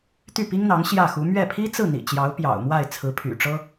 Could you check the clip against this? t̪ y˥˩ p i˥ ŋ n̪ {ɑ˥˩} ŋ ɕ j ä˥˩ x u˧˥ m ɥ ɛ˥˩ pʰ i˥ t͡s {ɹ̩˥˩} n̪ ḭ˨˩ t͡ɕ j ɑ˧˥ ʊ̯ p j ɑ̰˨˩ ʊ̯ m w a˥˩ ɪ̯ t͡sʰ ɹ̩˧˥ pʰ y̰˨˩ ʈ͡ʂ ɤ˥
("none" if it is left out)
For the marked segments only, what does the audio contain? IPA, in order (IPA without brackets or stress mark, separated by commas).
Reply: ɑ˧˥, ɹ̩˥˩